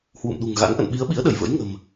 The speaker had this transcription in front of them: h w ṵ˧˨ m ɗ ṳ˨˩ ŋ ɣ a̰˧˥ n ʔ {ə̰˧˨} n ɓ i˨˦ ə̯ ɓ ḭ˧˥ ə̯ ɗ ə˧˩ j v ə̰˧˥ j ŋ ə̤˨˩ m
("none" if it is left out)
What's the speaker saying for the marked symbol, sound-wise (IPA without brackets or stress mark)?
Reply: ə̰˧˨